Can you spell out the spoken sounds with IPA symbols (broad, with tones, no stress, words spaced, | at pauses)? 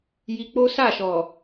ji˧k͡po˦sa˦˨ʃɔ˨